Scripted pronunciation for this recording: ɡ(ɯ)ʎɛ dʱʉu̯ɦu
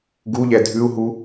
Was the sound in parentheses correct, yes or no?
no